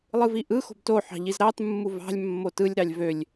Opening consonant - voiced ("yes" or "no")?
yes